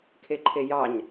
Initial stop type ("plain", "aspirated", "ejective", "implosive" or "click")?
aspirated